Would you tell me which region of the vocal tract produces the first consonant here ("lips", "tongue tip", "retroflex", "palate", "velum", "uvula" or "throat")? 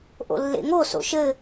throat